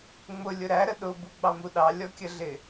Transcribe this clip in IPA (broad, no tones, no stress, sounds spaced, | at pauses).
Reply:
ŋ͡m ʊ lʲ ʊ ɾ æ ɾ ə ɗ ʊ b u ɡ͡b ɑ m u ɗ ɑ lʲ ɔ kʲ ə ɮ ɪ